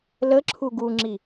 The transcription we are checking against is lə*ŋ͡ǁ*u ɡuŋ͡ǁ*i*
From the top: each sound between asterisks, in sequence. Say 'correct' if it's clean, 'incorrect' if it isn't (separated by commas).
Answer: incorrect, correct